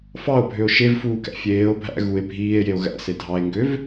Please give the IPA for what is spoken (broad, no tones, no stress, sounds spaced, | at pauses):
f ɑ o̯ bʱ ø o̯ ʃ e v f uː k æ̰ fʲ eː o̯ bʱ æ̰ ɣ u e̯ bʱ iː e̯ j e o̯ ɣ æ̰ s e dʱ ɑ e̯ ŋ ɡ ø v